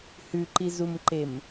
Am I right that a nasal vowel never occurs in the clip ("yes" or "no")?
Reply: yes